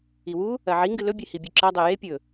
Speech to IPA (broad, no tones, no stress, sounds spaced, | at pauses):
i w u | ɐ ʕ i ŋ ɡ ɨ l ɵ bʲ e h i bʲ ʉ ǁ a dˤ e j e pʲ ɵ